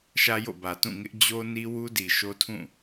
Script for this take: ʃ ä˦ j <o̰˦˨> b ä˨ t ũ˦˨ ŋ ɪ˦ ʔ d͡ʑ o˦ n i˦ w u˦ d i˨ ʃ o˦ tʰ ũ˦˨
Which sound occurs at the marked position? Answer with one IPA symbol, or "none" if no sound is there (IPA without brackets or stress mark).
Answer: o̰˦˨